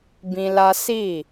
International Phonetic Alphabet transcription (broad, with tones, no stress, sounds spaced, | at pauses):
b ĩ˧ l a˦ s i˦˨